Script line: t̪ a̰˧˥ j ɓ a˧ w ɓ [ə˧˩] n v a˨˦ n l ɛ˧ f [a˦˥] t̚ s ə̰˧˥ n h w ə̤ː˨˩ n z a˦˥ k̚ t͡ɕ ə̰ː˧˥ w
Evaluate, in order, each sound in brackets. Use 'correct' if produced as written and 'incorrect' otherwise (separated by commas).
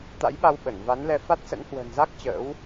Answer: correct, correct